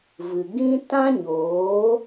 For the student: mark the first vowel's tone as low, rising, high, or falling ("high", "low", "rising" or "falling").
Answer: low